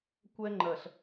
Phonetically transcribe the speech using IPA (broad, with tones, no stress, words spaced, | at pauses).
kʷɛ˦ŋ͡ǃɜ˨ɬ